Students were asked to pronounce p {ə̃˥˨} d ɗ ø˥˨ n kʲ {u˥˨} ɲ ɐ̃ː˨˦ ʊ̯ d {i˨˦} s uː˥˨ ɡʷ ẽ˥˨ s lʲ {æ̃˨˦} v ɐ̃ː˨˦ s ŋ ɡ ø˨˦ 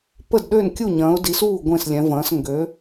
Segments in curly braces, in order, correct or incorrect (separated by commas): incorrect, correct, correct, incorrect